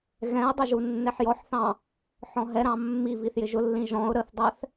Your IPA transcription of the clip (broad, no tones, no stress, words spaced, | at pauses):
ɣɛ̃ɪ̯dˤʊ ʒunːɛħjɔħθɑ̃ | ħɔ̃ɦɛ ɾɑ̃mːi viθjɪʒʊlːĩ ʒɔ̃ʊ̯ ɾəθdˤɛθ